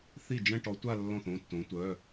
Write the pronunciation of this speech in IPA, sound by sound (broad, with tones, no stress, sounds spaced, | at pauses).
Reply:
θ i˥˩ d͡ʒ ɛ̃˥˧ ʈ ɔ˧˥ tʷ a˥˧ lː ɔ̃˥˩ θ õ˧˥˧ tː õ˧˥ tʷ œ˧˥˧